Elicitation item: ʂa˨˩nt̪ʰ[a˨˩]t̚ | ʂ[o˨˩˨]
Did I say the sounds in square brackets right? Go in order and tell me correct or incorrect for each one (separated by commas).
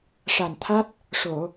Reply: incorrect, correct